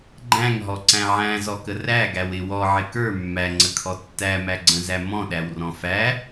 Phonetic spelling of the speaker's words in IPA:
ɡ͡ǃ æ̃ ŋ ɦ ɔ ǀ æ̃ ʕ æ̃ z ɔ k ə r æ ɡ æ w ɪ w ɔ ʕ ɪ k ə˞ mː æ ŋ͡ǀ ə kʰ ɔ tː æ m æ ɡ͡ǀ ə̃ z æ m ɔ̃ ɗ æ w r ɔ̃ f æ

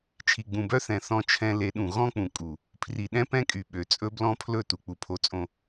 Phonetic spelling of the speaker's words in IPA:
t͡ʃʰ i˨ ɡ͡b ũ˨ b œ˦ θ ɛ̃˨ θ ɔ̃˦ t͡ʃʰ ɛ̃˦ l e˨˦ ɗ ũ˨ ɣ ɔ̃˦ k͡p ũ˨ kʼ u˨ | pʰ r i˨ ɗ ɛ̃˦ p ɛ̃˦ kʼ y˨ ɓ ø˨ t͡sʼ ɵ˦ b l ɔ̃˦ pʰ l ɵ˦˨ t u˨ k͡p u˨ pʰ o˨ t͡sʼ õ˨

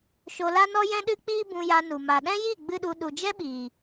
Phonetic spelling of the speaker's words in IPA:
ʃ o˧ l a˦ n ɔ˦ j ɛ̃˦ ɗ ɨ˦ k͡p iː˦ b ũ˧ j a˧ n u˨ m a˨ ɗ ɛ̃˦ j i˦˨ ɡ͡b ɨ˦ ɗ u˧ ɗ u˨ d͡ʒ ɛ˦ ɓ iː˨

